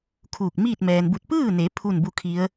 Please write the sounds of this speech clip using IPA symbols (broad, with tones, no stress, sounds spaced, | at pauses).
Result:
kʰ uː˧˩ k̚ m iː˥˨ t̚ m ɛː˩ n b u˧˩ t̚ p ɯː˥˨ n e˩˧ pʰ u˥˨ n b u˥˨ kʰ i˧˥ ə̯